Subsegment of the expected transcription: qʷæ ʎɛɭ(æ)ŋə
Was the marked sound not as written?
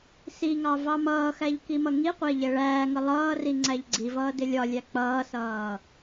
yes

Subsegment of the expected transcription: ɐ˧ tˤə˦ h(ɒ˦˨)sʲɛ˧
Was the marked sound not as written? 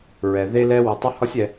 yes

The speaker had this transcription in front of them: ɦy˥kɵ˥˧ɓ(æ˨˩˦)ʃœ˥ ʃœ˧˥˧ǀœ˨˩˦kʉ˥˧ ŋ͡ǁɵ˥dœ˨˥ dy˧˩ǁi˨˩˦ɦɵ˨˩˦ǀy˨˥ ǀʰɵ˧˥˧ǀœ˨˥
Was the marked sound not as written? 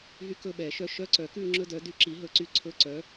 yes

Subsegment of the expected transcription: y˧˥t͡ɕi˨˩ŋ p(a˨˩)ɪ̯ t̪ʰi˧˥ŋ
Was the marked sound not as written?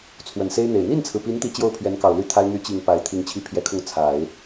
yes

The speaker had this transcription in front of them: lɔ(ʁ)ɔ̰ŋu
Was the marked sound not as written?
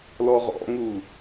no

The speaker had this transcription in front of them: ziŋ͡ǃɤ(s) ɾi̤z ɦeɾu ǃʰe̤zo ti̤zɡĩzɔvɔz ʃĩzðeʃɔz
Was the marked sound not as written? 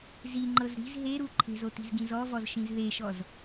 yes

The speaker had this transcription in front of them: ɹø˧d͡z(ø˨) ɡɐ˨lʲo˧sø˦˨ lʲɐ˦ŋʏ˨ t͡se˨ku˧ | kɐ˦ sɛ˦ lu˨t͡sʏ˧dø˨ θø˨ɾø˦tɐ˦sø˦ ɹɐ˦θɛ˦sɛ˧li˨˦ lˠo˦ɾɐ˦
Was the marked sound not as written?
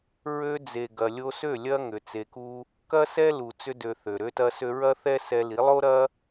yes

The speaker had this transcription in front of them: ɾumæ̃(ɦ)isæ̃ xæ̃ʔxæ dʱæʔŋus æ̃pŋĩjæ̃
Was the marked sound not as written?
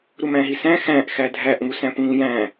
no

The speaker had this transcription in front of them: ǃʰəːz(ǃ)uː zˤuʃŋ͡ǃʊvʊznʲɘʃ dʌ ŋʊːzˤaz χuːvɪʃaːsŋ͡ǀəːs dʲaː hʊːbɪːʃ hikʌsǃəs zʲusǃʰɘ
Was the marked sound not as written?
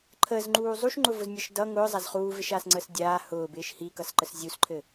yes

